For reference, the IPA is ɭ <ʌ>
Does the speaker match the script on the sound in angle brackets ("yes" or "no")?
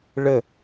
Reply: no